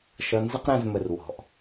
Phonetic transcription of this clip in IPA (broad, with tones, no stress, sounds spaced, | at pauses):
ʃ ʌ˨ n z ə˦ q ɾ æ̃˨ z m ə˩ r w ɔ̤˩ ʔ